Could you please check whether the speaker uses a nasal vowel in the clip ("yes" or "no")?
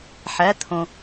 yes